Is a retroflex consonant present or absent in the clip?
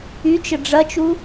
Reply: present